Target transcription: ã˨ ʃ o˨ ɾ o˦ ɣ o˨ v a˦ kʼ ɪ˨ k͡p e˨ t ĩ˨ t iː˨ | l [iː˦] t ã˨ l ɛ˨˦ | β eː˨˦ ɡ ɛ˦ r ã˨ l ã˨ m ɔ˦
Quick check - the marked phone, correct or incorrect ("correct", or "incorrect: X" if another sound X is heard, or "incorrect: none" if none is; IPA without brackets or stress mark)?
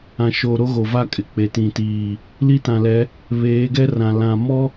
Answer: incorrect: i˦